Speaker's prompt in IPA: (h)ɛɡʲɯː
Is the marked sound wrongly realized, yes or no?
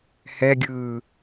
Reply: no